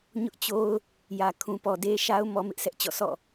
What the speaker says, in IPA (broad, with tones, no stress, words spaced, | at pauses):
ɲʊ˦ʔt͡ɕo˦ʊ̯ | jä˨ kʰũ˨pɔ˨de˦ ʃa˦ʊ̯ mɔ˦mɪ˦ʔsʰɛ˦ʔt͡ɕɔ̰˦˨ sʰɔ̰˦˨